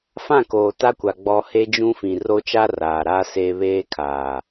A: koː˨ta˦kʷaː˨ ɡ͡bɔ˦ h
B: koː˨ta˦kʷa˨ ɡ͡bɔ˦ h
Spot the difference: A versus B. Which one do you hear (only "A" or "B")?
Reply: B